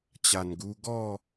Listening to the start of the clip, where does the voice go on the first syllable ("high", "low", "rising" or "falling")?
low